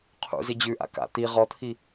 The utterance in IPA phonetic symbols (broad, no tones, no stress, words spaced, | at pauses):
qʰṵzi d͡ʑʉʔa̰ ka̰ t̪i ʁɔt̪ʰi